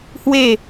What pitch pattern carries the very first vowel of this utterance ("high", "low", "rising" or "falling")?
falling